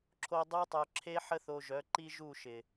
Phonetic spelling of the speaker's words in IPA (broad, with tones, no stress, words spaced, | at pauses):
ǁʰo˧ dˤu˦tˤœ˧ǁʰe˦ ħə˦θo˧ʒœ˨˦ ǃi˦ʒu˦˨ʃɪ˨